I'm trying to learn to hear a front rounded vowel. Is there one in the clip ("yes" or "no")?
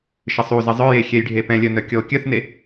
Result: yes